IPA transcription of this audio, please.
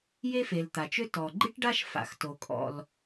je˥fe˩l t̪a˩t͡ʃø˥ tɔ˩ ɡ͡ǃi˥ʈɖa˥ʃ fa̰˩xto˩ kʼɔ̰˩l

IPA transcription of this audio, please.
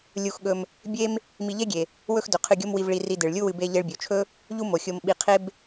lʲu˧xɠɵ˧m | bʲe˥m | mi˧ʎe˥ɡʲe˩ | wɵ˥xdɵ˩qʰɨ˧ɡʲo˥m wi˧vɭi˧ri˧ dɨ˩ɭlʲu˥wɨ˧ be˧ʎe˧ɭbʲo˩t͡ʃʰɵ˥ | ʎu˥mo˩xʲo˧mɓi˧ qʰe˥b

